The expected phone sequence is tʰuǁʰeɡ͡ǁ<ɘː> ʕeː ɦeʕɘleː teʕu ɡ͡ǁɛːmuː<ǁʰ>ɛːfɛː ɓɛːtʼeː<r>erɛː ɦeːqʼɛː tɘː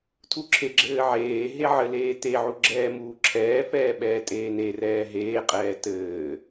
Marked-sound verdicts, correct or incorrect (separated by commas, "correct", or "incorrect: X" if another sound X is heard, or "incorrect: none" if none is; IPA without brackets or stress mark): correct, correct, incorrect: n